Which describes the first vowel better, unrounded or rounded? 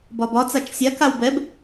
rounded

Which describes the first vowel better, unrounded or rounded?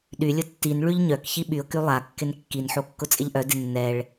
rounded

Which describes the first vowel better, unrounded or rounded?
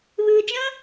unrounded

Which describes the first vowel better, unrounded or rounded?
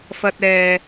unrounded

